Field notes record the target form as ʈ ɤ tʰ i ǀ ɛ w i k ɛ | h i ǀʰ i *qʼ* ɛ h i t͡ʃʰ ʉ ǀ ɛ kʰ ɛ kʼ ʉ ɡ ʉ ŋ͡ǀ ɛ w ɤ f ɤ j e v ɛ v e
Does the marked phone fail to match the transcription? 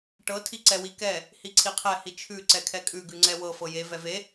yes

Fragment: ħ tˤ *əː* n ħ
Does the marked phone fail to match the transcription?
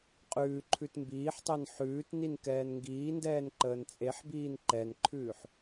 no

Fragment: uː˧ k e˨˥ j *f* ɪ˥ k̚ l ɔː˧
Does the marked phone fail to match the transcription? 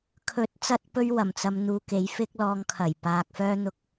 no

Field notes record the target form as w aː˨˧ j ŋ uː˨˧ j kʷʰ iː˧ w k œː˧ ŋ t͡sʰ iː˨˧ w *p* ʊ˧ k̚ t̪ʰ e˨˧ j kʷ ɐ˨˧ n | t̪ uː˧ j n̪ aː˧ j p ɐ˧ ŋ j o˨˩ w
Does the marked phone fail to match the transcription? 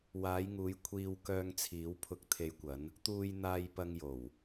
yes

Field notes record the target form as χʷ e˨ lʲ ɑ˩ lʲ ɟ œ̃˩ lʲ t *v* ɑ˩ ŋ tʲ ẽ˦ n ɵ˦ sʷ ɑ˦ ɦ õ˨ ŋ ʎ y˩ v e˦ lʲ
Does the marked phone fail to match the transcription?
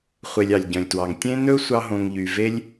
yes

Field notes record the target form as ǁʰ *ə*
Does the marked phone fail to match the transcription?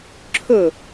yes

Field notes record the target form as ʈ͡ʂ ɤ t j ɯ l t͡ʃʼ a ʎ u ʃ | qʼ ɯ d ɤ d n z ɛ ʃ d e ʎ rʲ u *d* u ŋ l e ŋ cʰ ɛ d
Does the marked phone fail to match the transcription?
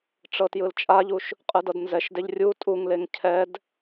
yes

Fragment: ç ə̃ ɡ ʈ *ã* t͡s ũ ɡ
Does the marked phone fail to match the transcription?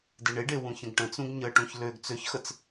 yes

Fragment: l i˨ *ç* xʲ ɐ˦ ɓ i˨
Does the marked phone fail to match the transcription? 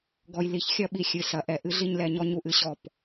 no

